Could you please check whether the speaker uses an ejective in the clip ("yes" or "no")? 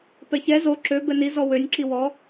no